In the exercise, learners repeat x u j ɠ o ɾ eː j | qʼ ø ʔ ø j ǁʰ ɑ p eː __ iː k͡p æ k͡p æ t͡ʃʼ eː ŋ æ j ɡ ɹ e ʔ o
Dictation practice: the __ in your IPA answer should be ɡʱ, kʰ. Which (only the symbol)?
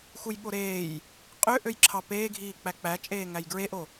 ɡʱ